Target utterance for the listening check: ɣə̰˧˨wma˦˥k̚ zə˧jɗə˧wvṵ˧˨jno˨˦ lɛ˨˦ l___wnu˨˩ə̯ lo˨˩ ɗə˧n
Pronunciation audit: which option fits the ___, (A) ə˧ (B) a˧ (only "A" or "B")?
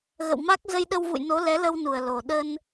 A